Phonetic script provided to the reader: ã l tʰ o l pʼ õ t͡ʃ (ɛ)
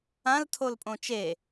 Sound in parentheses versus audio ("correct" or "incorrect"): incorrect